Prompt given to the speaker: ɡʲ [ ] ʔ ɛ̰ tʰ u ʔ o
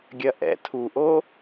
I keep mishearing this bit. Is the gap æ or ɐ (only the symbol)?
ɐ